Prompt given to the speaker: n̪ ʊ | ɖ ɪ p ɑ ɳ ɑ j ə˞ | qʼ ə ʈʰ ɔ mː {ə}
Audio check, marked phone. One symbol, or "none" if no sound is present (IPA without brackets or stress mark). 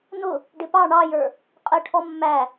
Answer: æ